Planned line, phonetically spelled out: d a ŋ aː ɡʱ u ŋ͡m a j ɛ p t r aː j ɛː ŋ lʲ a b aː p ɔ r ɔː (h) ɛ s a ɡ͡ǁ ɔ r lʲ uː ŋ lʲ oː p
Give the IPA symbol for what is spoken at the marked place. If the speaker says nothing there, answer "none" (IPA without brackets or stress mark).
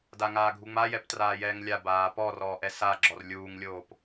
ʔ